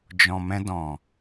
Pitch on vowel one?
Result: low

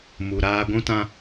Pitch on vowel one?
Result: low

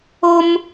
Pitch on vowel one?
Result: high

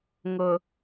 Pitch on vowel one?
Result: low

